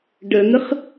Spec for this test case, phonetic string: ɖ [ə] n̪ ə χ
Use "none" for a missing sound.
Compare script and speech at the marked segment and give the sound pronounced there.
ə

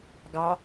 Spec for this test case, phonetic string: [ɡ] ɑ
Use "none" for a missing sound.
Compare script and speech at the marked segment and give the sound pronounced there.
ɡ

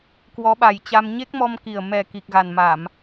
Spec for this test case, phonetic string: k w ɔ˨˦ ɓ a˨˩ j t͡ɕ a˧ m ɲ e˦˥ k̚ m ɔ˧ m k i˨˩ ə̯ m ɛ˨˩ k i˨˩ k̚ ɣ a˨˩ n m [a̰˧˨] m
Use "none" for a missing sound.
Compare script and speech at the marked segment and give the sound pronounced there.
a˧˩˨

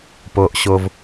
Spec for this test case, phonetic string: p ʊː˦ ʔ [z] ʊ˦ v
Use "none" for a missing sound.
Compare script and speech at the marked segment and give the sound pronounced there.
ɕ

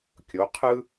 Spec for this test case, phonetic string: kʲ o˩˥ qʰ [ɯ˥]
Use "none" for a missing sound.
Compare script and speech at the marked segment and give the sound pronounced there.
ɯ˥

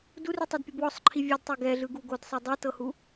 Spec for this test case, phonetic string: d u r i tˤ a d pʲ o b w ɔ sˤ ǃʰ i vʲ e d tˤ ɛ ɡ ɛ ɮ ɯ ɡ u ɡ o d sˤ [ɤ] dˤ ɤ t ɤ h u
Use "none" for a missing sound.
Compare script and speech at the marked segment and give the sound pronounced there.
ɤ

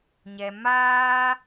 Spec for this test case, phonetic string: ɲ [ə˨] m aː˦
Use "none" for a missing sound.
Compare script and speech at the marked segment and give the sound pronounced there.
ɛ˨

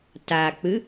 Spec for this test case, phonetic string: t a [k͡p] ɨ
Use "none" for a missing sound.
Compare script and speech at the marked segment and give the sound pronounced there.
k͡p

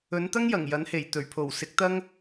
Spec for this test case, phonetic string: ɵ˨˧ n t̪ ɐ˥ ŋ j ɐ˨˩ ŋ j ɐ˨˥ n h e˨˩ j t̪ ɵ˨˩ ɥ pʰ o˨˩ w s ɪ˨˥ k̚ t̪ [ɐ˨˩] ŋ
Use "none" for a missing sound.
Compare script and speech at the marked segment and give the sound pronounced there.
ɐ˥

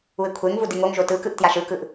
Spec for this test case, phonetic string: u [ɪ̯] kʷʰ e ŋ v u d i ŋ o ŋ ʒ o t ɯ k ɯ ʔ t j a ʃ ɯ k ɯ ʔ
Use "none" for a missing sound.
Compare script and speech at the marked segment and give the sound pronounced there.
ɪ̯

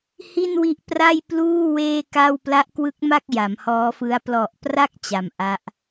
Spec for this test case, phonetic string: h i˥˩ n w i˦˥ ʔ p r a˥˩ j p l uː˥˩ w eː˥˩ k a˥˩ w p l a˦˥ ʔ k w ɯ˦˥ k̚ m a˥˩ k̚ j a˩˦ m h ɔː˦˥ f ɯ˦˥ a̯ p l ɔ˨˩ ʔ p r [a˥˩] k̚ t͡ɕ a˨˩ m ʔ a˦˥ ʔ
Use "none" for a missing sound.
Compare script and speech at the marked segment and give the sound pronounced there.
a˥˩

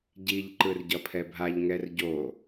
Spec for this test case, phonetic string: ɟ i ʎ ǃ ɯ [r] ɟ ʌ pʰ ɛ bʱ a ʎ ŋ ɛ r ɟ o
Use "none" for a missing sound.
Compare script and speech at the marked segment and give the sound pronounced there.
r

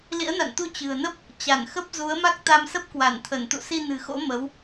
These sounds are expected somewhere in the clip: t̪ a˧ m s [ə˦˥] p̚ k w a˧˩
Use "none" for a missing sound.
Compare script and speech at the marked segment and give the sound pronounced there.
ə˦˥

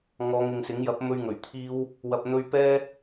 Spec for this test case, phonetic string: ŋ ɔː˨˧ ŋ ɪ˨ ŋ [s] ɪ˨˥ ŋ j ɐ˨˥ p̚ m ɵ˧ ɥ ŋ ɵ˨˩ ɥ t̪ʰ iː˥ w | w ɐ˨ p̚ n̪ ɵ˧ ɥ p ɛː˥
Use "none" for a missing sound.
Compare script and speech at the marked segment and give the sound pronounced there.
s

